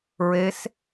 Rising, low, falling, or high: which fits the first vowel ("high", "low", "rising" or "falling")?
rising